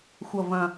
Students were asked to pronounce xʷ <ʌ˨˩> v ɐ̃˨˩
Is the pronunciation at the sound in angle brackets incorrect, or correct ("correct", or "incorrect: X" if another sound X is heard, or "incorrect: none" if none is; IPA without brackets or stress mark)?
correct